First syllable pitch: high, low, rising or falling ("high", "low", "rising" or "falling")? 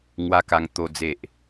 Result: high